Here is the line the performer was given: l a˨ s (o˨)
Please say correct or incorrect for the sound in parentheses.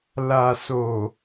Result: correct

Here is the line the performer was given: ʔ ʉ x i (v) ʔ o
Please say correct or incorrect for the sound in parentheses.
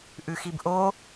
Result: incorrect: b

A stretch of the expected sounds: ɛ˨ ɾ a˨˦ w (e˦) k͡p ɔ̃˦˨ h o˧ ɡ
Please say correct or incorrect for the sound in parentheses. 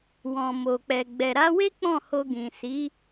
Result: correct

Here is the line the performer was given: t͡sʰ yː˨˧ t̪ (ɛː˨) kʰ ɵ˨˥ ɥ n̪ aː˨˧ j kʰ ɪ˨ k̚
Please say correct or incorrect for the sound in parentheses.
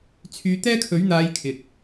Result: incorrect: ɛː˥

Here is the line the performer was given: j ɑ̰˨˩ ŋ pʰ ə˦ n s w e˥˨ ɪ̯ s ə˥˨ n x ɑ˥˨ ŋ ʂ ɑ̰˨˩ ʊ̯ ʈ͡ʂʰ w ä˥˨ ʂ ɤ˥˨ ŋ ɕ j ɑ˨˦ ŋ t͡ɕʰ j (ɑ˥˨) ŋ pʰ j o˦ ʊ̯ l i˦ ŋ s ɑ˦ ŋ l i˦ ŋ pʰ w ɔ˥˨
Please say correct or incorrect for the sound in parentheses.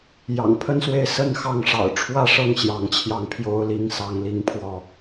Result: incorrect: ɑ˧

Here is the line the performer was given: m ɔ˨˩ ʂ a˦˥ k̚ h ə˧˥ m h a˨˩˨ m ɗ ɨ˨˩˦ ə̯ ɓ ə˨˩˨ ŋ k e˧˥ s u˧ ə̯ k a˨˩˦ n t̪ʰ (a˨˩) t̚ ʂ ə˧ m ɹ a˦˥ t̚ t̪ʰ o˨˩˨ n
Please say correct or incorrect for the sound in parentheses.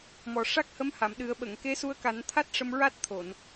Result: incorrect: a˦˥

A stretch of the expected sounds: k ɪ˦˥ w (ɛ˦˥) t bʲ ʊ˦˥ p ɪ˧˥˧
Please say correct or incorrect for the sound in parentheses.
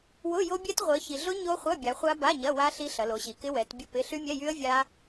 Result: incorrect: ɛ˨˦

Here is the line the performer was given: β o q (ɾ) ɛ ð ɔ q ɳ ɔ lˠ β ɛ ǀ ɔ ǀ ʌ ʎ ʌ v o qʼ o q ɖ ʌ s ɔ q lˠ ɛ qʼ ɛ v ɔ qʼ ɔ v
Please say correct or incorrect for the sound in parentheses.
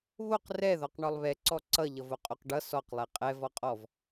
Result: incorrect: r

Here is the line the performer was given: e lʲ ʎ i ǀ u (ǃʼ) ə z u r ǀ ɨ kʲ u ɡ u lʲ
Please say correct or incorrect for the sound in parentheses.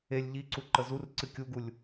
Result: incorrect: ǃ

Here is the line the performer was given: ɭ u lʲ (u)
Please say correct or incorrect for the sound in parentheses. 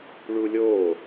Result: incorrect: o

